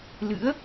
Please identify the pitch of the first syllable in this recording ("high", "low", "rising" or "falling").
rising